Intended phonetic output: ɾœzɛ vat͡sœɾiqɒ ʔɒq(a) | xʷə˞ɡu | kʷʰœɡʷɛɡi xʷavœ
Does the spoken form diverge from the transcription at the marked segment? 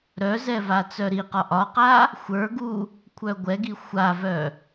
no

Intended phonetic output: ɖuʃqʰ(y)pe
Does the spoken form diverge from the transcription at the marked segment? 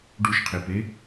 yes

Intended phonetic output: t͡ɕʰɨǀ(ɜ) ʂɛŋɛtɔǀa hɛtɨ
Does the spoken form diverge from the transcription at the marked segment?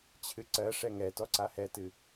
no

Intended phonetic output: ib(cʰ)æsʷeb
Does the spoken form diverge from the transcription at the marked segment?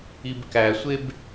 yes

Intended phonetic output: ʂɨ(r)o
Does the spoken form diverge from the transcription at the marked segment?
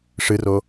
no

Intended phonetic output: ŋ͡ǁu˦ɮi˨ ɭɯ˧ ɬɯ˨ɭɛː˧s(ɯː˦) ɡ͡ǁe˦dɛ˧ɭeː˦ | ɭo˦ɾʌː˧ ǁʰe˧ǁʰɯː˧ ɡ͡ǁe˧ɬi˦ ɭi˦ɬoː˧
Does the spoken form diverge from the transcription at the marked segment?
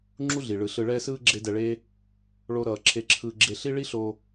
yes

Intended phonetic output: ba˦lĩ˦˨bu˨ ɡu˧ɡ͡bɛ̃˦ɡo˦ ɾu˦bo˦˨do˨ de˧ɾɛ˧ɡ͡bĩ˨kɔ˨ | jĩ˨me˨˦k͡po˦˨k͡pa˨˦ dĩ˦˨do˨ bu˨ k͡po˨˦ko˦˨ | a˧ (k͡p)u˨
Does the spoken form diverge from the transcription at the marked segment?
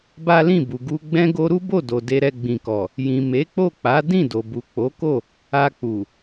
no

